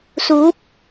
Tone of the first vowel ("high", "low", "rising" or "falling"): rising